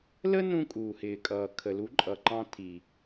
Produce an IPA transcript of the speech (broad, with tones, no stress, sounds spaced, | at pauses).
l ə˦ n ũ˧ kʼ u˨ h ɪː˨ kʼ ʌː˨ kʰ ə˨ l u˨˦ ǃʼ ʌ˨ ǃ ɑ̃˧ tʰ i˨